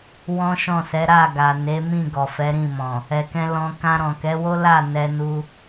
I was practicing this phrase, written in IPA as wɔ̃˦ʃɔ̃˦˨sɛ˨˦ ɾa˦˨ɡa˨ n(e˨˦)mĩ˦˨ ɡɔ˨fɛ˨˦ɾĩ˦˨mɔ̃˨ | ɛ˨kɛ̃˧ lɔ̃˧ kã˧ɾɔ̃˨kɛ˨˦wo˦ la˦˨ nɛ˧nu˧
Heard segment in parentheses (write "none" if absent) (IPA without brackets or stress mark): e˨˦